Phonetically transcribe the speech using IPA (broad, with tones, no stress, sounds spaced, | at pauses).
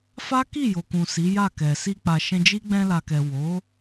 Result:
f a˦ k i˦˨ j o˨ k ũ˨ s i˨˦ j a˦˨ k ɛ˨ s i˧ k͡p a˨ ʃ ɛ̃˧ d͡ʒ i˦ ɡ͡b ɛ̃˧ l a˨ k ɛ˨ w o˨˦